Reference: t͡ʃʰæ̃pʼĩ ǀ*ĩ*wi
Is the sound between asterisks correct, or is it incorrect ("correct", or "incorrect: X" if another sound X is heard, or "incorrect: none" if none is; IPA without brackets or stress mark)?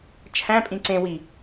incorrect: ẽ